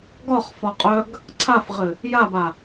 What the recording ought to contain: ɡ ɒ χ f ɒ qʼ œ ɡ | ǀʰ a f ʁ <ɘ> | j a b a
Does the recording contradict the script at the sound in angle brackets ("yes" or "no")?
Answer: no